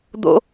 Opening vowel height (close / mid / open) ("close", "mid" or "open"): mid